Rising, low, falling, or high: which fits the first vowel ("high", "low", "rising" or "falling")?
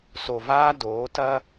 low